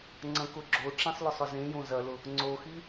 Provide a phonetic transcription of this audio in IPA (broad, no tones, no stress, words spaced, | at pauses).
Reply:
ŋ͡ǀɐ̃kʊɡ͡ǁoʈ͡ʂĩsˤ lʊsˤʊzẽjõ zɐlʊ | ŋ͡ǀoxi